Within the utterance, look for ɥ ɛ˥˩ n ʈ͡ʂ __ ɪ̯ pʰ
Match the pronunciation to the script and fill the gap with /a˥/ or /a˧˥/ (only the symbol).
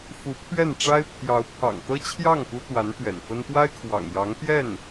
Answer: a˥